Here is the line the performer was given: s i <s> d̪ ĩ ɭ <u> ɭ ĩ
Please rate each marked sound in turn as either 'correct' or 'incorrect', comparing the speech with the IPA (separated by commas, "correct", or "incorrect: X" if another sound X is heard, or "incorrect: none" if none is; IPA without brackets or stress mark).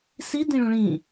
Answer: incorrect: none, incorrect: ũ